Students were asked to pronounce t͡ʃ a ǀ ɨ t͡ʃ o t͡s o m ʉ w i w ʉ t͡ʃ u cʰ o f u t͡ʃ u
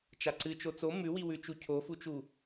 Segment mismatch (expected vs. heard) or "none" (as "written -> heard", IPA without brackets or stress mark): none